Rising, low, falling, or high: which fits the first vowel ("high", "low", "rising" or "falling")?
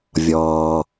low